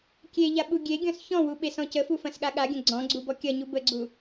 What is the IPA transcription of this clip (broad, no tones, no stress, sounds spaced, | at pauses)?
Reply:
kʲ e ʎ a ɓ u ɡʲ e ɡʲ ɔ̃ s ç ɔ̃ w u ɓ e s ɔ̃ c ə f u f ɐ̃ s ɠ a ɠ a ɡʲ ɐ̃ ɡ͡ǀ ɔ̃ ɡ͡ǀ u b ɔ kʲ ɐ ɲ u b ə ɡ͡ǀ u